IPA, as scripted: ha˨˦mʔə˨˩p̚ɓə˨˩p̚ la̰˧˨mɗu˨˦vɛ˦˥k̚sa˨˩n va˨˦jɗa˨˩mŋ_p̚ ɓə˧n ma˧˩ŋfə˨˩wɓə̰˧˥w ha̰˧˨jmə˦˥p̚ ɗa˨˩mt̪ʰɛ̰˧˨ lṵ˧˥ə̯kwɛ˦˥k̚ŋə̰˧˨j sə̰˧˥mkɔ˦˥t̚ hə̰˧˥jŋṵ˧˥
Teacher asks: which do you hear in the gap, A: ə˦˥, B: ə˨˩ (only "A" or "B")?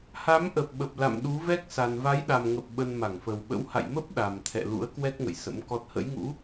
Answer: B